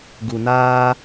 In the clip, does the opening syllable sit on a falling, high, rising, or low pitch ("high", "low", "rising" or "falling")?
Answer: low